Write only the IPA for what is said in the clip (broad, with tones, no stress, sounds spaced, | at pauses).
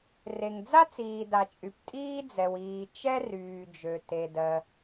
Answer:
r e˩ ŋ d͡z a˥ t͡s iː˩ d a˩ t͡ʃʼ y˩ p tʼ iː˥ d͡z ɛ˩ w iː˩ t͡ʃ ɛ˥ r yː˩ d͡ʒ ø˩ t e˩ d ɜ˩